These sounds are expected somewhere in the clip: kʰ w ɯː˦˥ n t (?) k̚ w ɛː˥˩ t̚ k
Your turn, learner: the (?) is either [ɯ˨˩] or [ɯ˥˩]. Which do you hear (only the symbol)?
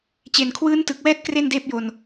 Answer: ɯ˨˩